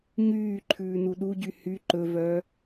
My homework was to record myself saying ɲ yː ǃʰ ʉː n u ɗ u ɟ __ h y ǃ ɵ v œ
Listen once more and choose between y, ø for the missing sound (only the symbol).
y